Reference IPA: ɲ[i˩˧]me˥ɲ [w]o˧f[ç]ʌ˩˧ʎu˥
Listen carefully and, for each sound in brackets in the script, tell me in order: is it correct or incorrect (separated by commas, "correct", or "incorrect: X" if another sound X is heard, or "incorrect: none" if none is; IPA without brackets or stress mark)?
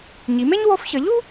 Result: correct, correct, correct